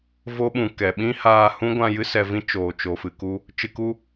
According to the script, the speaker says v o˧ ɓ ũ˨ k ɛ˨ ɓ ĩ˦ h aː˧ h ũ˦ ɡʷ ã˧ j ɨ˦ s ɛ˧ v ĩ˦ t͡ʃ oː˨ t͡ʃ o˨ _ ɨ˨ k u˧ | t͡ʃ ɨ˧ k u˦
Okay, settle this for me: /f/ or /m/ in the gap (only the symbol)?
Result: f